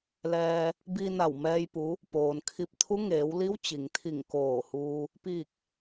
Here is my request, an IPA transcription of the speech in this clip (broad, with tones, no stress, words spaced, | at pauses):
lɛː˧ | bi˧na˧˩wmɛː˧j pu˧˥ | poː˩nkʰi˧p̚ t̪ʰu˧˥ŋeː˩˧w li˧˥wt͡ɕi˩ŋt̪ʰi˧˩ŋ koː˧˩huː˧ | piː˧˩k̚